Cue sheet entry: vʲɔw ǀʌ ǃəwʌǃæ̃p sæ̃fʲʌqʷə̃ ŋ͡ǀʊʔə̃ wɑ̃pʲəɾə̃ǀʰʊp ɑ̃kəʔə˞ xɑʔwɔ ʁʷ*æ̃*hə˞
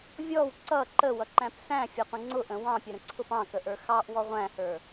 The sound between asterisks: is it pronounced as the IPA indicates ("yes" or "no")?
yes